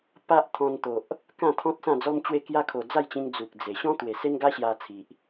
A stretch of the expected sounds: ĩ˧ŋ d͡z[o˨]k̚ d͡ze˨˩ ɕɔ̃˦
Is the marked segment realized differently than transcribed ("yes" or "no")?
yes